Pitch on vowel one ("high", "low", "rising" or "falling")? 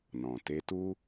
low